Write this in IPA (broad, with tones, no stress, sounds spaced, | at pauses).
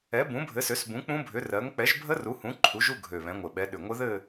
ɛ˨˦ b ũ˨˦ bʱ ɘ˨˦ s ø˨˦ s b ũ˨˦ k͡p ũ˦˥ bʱ ʏ˨˦ r ɜ˨˦ ŋ k͡p ɛ˨˦ ʒ bʱ ə˦˥ r u˨˦ h ũ˨˦ ǃʰ u˨˦ ʒ u˥˧ ɡʱ ø˨˩ β ɛ̃˨˦ ŋʷ ɘ˨˩ ɓ ɛ˨˦ ɗ ʏ˨˩ ŋʷ ɘ˦˥ ð ɘ˥˧